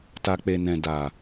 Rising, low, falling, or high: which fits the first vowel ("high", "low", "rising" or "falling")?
low